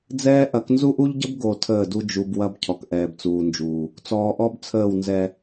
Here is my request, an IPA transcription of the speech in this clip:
d͡z ɛː˦ ʔ ɐ˨˦ k n z u˦ ʔ u˦ ʎ ɟ ə˦ b ɡ o˨ tʰ əː˦˨ d u˦ d͡ʒ u˨ b w ɐ˦ b cʰ ɔ˨ k ʔ ɛː˨ b t͡s uː˨ n d͡ʒ uː˨ | t͡s ɔː˨ ʔ ɔ˦ b t͡sʰ əː˦˨ w n z ɛ˦

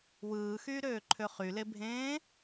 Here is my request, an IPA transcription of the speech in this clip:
w ɯː x yː ɾ øː ǃʰ ø χ y l e bʱ ẽː

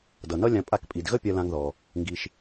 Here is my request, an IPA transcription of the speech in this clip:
d ʌ˩ n ʌ˥ lʲ ã˧ pʼ a˧ k pʼ i˩ d ɣ ə˥ pʲ ɜ˧ l ã˧ ŋ ð ɔ˩ | ŋ ɡ i˧ ʃ

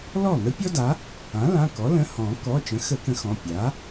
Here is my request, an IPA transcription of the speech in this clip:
l ɔ˥˩ n̪ ə˥ pʲ ɔ˥ d a˩˥ | ã˩˥ l ã˩˧˩ k ɔ˩˥ l ə̃˩˧˩ h ɔ̃˨˩˦ k ɔ˩˧˩ t͡ʃ ə̃˩˥ x ə˨˩˦ k ə̃˩˥ x ɔ̃˩˧˩ pʲ a˩˥

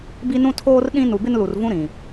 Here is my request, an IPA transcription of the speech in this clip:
b i˦ n ũ˦ tʰ oː˦ r ɗ ĩ˦ n u˨ b ɪ˦ n l u˨ r v ũ˦ ɾ ĩ˨

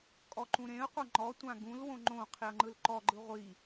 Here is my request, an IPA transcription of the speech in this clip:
kʼ ɔ ǃ ũ ɾ ẽ ə̯ qʷ ɤ ŋ͡ǃ ɔ tʷ ã ɡ ũ l w õ ŋ͡ǃ õ qʰ i ə̯ ŋ͡ǃ ɯ l ǃ ɔ ɡ͡ǃ ɯ ʁʷ i

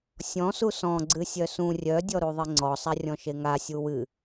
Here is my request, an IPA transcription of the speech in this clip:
sʲ ɔ̃ s u s ɔ̃ ɡ͡ǀ ɨ sʲ œ s ũ rʲ œ dʲ ɔ ɾ u ðˤ e ŋ͡ǀ ɔ sˤ a rʲ ɔ̃ ʃ e ŋ a sʲ u w ɨ

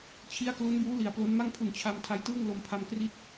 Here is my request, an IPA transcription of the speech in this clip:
t͡ɕʰ i˦˥ a̯ k l u˦˥ n b uː˦˥ l i˨˩ a̯ p l o˦˥ n m a˥˩ ŋ pʰ u˨˩ n t͡ɕʰ a˧ m tʰ a˦˥ j t ɯː˥˩ ŋ l o˧ m pʰ a˧ m k r i˥˩ t̚

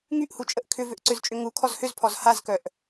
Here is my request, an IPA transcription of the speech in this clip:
ŋ y ʔ h u t͡ʃʼ ə ʔ kʰ ʏ v ʏ ʔ ǀ ʏ z t͡ʃʼ ʏ ŋ u kʰ ɔ z h ʏ z pʰ ɔ z h a z k œ ʔ

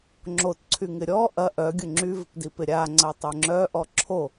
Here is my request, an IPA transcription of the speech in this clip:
ŋ͡ǁ o t ǀʰ y ŋ ɪ ɾʲ ɔ ʔ ɐ ʔ œ ɡʲ ʊ ŋ͡ǁ y v ɪ p d i p ɪ ɾʲ a ŋ͡ǀ ɐ tˤ œ ŋ͡ǁ œ ʔ ɔ ǁʰ o

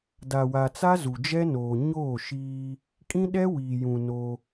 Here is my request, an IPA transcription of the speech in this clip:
d a˨ w a˨ t͡s a˦ z u˨ d͡ʒ ɛ˦ n oː˨ ɲ oː˦˨ ʃ iː˦ | kʼ ĩ˦ ɗ ɛ˦ w iː˨ j ũ˨ n o˦

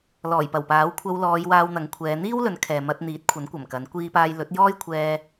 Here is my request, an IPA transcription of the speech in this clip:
l ɔː˨˩ j p ɐ˨˩ w p aː˨˥ w kʷʰ ɐ˧ w l ɔː˨˧ j w aː˧ w n̪ ɐ˨˥ ŋ kʷʰ ɛː˨˧ n̪ iː˥ w l ɵ˨˧ n kʰ ɛː˨ m ɐ˧ t̚ n̪ iː˨˥ t̚ kʷʰ ɐ˨˥ n kʷ ɐ˨˩ m k ɐ˨˥ n kʷ iː˧ p aː˧ j l ɵ˨˥ t̚ j ɔː˥ j kʷʰ ɛː˧

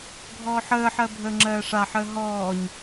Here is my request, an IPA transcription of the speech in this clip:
ɡʱ ɔː ħ əː ħ ɜ bʱ əː ŋ͡ǁ ɜː ʂ a ħ əː ɦ ɔː ɲ

